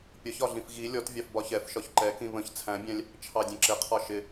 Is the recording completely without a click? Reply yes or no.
no